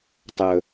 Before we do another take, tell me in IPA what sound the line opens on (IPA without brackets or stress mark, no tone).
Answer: tˤ